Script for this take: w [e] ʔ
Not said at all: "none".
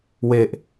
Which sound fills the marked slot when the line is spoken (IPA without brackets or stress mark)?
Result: e